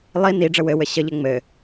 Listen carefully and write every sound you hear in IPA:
lˠ i n i ɖ͡ʐ ə w ɘ w ɘ ɕ ə ʎ ɘ ŋ͡m ɘ

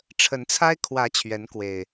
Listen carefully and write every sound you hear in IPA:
ʈ͡ʂʰ ə˨˦ n t͡sʰ a˦ ɪ̯ kʰ w ä˨˦ t͡ɕʰ ɥ ɛ˨˦ n k w e˨˩ ɪ̯

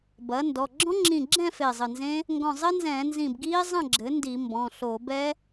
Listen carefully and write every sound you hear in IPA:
b ɐ˩˥ n d ɔ˩˧˩ ɡ͡ǁ ɔ̃˦˥ ŋ͡ǁ ĩ˧˩ ɡ͡ǁ ɛ̃˥˨ f e˧˩ zˤ ɘ˧˩ n z ẽ˦˥ | ŋ ɡ ɔ̃˧˩ zˤ ɘ˦˥ n z ɛ̃ː˧˩˧ n z ĩ˧˩ b ɡ iː˦˥ zˤ ɐ̃˥˨ ɡ͡ǁ ɘ˩˥ n d i˧˩˧ m b ɔ̃˩˧˩ ɬ oː˧˩˧ b ɛ˦˥

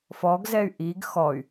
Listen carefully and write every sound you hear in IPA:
f ɔ ɡ z ɛ y̯ ʔ i ɡ x ɔ y̯

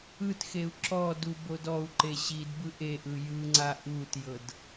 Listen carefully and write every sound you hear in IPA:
ɯ t x e u̯ ǁ ɔ d u b o d ɔ u̯ ǃ e ɕ i d b ɯ ʔ e ʔ ɯ j ɯ ŋ͡ǀ a ʔ u t j ɤ d

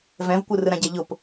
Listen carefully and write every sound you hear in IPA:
v ɛ̃ v kʷ ɯ r ɯ ɾ ã ɟ ɛ ʎ ʊ p

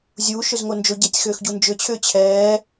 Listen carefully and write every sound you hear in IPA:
zʲ uː ʃ ʏ z ŋ o n d͡ʒ o ɟ ɛ tʲ x ʏː x ɟ u n d͡ʒ ʏ t͡ɕʰ ʏː t͡ɕʰ ɛː

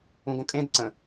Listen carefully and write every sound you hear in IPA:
ũ ɡ õ kʼ ẽ d ǀ ə̃

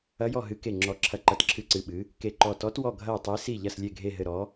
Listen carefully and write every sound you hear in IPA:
ɐ˧˥ j ɔ˦˨ ɦ ɨ˧˥ k e˦˨ ŋ͡ǁ ɔ˧˥ ǁʰ ɐ˦˨ ǃ ɐ˦˨ t ǁʰ ɨ˦˨ ǀ ɨ˦˨ ɓ ɨ˧˥ | k e˦˨ ǃ ɔ˦˨ t ɔ˧˥ t w ɔ˦˨ ɡʱ ɐ˦˨ o̯ tˤ e˧˥ s i˦˨ ʎ ɐ˦˨ s lʲ e˦˨ ɡʱ e˦˨ ɦ ɘ˦˨ ɾ ɔ˧˥

